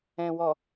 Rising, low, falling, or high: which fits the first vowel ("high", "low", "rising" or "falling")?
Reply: low